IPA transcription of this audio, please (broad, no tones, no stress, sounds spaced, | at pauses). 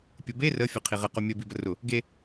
pʲ ʊ b e r ə fʲ ʊ qʰ i ʁ ə q o mʲ ə b i b ə r ʊ | ɡ e